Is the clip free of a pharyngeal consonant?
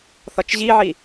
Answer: no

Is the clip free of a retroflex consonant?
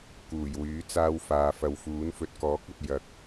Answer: yes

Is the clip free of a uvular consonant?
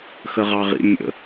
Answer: no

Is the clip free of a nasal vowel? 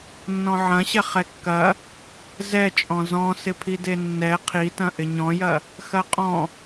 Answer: no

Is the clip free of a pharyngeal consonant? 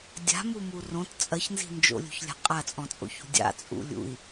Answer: yes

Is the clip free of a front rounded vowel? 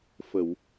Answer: yes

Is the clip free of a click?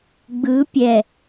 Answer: yes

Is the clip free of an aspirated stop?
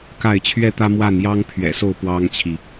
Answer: no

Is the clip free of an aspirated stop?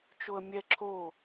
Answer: no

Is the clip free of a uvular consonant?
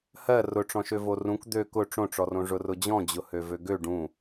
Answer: yes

